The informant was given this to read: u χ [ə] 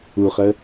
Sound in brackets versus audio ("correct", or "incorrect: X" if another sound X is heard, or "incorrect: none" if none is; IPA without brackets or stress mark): correct